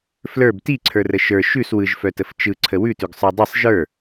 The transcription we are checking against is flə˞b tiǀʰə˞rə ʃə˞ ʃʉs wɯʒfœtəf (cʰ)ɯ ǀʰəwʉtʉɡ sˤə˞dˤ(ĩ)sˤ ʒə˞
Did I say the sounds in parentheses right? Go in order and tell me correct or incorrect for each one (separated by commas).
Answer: incorrect, incorrect